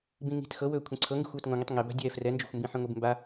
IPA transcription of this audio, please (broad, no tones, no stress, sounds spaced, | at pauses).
b ĩ ŋ i̤ t x ɤ w ɵː kʷʰ ĩ ǀʰ ɤ ŋ ɡ i̤ xʷ w ɤ t ŋ õ ŋ i tˤ ŋ e b a̤ dʲ ɛː f r ɛ n d͡ʒ o̤ xʷ m b ĩ ħ ĩ ŋʷ i b m b a